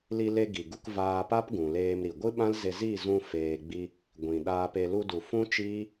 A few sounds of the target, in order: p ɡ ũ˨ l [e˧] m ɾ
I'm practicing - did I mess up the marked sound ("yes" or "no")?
yes